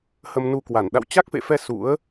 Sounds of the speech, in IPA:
hə˧mnu˧kwa˧˩n ɗa̰˧˨wt͡ɕa˦˥k̚fḛ˧˨fɛ˧ sṵ˧˥ə̯

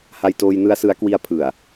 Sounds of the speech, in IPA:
ha˧jtoː˧jnɯ˦˥a̯ sɯ˦˥a̯kwi˦˥a̯ pʰɯ˨˩a̯

